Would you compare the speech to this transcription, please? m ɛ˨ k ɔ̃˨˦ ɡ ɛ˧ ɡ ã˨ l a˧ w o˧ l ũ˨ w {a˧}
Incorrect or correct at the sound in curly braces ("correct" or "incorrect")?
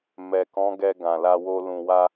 correct